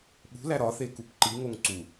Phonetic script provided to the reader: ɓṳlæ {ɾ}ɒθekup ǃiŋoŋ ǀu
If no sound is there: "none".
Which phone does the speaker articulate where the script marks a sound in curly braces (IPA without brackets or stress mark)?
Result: ɾ